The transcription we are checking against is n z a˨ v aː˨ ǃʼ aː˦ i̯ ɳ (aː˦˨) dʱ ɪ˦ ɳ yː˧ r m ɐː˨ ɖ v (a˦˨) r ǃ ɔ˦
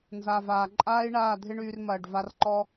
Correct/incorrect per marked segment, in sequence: correct, incorrect

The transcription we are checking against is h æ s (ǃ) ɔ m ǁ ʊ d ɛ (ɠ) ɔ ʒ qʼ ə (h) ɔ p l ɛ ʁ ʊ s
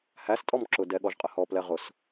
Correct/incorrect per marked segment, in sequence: incorrect, correct, correct

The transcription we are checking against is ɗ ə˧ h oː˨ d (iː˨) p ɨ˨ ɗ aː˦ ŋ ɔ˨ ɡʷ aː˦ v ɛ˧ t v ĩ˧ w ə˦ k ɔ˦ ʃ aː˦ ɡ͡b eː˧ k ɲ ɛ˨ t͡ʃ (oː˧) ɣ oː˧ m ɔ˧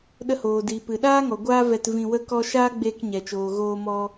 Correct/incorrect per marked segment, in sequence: correct, incorrect

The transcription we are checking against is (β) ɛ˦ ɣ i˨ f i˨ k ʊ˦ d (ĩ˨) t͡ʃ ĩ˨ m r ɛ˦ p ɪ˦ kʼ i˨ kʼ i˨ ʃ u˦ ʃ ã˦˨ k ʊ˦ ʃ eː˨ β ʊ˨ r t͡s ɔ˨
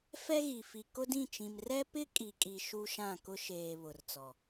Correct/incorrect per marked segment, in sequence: incorrect, incorrect

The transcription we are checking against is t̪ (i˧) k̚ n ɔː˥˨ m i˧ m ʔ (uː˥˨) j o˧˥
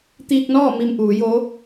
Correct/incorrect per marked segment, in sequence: incorrect, incorrect

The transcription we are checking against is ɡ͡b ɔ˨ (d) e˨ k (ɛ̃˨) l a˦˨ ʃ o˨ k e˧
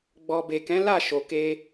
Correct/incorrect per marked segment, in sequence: incorrect, incorrect

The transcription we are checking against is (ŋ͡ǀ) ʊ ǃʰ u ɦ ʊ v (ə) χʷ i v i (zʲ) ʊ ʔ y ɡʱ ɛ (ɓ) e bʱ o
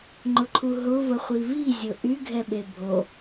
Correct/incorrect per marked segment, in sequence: incorrect, correct, correct, correct

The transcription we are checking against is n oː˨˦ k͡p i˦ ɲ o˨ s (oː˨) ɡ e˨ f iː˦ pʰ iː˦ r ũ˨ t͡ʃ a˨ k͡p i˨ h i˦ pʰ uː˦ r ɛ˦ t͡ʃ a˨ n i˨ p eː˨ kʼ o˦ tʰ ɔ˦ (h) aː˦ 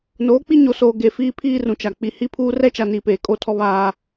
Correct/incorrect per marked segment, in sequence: correct, incorrect

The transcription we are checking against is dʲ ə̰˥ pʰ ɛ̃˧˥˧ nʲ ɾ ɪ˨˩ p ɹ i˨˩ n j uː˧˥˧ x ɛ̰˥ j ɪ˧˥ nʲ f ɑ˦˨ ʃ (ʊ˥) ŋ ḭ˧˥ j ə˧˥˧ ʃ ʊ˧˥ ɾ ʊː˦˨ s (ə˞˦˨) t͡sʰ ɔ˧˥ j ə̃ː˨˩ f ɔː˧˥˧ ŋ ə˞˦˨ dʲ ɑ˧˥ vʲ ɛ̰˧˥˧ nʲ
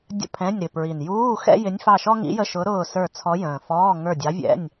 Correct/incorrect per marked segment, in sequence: incorrect, correct

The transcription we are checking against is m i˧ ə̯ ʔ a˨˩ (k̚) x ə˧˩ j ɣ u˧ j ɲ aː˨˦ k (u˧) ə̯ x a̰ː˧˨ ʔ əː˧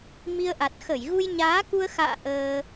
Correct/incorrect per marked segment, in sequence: incorrect, correct

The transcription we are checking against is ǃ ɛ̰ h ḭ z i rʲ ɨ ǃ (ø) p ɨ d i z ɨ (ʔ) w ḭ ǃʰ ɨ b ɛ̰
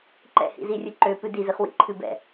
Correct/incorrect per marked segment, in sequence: correct, incorrect

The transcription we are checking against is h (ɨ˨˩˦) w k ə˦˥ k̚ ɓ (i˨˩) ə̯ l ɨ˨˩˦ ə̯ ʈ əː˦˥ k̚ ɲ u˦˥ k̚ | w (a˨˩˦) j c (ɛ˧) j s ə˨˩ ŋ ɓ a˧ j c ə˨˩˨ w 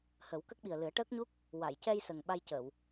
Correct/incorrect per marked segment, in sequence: incorrect, correct, incorrect, correct

